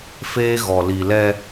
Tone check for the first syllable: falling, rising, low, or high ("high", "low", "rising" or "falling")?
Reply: high